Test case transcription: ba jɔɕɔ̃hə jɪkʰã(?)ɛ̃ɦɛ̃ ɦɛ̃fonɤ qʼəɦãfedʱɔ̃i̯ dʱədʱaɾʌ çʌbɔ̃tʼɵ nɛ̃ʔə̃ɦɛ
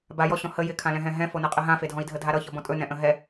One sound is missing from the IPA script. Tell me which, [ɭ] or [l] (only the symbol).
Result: l